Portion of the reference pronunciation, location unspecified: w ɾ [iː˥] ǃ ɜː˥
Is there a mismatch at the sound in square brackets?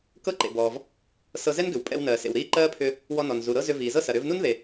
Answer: no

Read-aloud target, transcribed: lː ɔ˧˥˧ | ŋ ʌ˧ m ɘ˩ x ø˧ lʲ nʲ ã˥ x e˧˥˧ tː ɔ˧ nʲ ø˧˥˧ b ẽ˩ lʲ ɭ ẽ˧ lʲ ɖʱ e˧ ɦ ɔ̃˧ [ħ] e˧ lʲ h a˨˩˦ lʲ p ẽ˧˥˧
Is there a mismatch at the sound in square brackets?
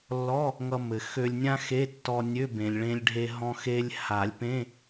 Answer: yes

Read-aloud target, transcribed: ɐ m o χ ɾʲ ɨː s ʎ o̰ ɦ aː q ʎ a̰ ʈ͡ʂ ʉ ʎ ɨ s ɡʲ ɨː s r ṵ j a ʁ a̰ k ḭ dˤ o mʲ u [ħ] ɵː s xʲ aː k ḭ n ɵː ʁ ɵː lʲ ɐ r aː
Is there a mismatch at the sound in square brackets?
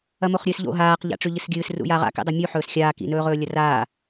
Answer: no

